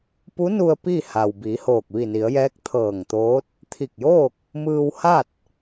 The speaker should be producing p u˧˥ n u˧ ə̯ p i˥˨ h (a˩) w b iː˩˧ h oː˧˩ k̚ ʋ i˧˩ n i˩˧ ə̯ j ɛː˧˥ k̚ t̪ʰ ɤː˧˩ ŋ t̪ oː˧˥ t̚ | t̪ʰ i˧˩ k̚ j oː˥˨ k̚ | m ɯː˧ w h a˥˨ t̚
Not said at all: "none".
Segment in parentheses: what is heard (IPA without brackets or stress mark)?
a˩